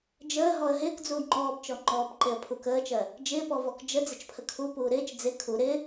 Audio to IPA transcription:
d͡ʒ əː ɦ ɔ ə̯ ɦ ɪː k d͡z uː ŋ͡ǃ ɔː b t͡ʃ ɔ ŋ͡ǃ ɔː b ǃ e ə̯ pʰ u k əː t͡ʃ ɜ | d͡ʒ ɪː p ɔ v ɔ k d͡ʒ ə d͡z ɪ t͡ʃ pʰ ə kʰ u p uː ɾ ɪː t͡ʃ d͡z ɪ kʰ u ɾ ɪ

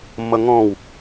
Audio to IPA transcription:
mː ʌ ŋ ɔ̃ w

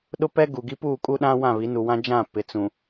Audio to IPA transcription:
ɗ ʊ˦ p ɛ˦ ɡ u˨ ɡ i˦ p uː˦˨ kʼ u˦ ɗ ã˦ w ã˦˨ β i˨˦ n u˨ w ã˦ d͡ʒ ã˦˨ p ɪ˨ t͡s ũ˨

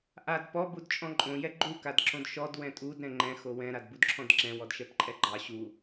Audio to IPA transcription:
ʔ a d p ɔ b u d t͡ʃʼ ɔ̃ ǃʼ õ j ɛ ɡ͡ǃ u k a d ǁ õ d ʃ ɔ d w ɛ̃ tʼ u d ɾ ɛ̃ ŋ͡ǃ ɛ̃ x o w ɛ̃ ɾ a d b u d ǁʰ ɔ̃ d ǁ ɛ̃ w ɔ d ʃ ɛ p ǃʼ ɛ ɡ͡ǃ ɑ ɕ u

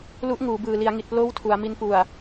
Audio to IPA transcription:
l u˦˥ ʔ ŋ uː˩˦ b ɯː˨˩ l i˩˦ a̯ ŋ i˨˩ t̚ p l oː˦˥ w tʰ u˩˦ a̯ m i˧ n p u˨˩ a̯

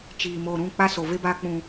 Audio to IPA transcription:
t͡ʃ iː˨ m oː˨ ɾ ũ˦˨ k͡p a˦ s o˨ v e˦ b aː˦ k͡p ũ˦

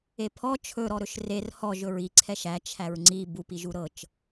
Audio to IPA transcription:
e pʰ ɔ t͡ʃʰ ɵ ɾ ɔ ɾ ɵ ʃ r e r h ɔ ʒ ɵ ɹ i ǀʰ ɛ ʃ æ t͡ʃʰ æ ɹ ŋ͡ǀ i b u p i ʒ u ɾ ɤ t͡ʃ

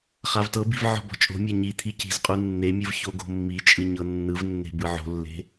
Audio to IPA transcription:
χ a v t ɤ b i̤ v ʕ ɔ̤ b ɔ̤ t͡ʃʼ o̤ mʲ a ɲ i t̪ʰ i c i̤ z qʼ u nː e mʲ ɯ v ç o ɡ o̤ mː i t͡ʃʼ ɯ ɲ ɤ nː ɯ v nː e̤ b ɯ ʕ o̤ lː e̤

